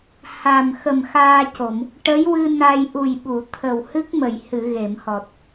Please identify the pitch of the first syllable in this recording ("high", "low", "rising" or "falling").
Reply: low